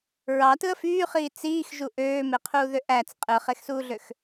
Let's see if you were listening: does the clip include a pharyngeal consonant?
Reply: no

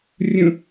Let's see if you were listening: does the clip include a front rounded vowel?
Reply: no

